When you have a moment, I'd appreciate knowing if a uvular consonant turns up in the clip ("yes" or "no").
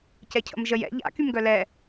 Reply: no